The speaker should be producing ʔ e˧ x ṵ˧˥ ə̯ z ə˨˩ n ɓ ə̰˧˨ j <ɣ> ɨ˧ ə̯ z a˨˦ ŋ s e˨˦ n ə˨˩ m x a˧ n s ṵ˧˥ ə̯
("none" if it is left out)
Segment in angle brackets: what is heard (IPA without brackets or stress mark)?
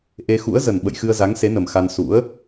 x